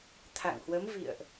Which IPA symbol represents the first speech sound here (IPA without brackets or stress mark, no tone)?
t̪ʰ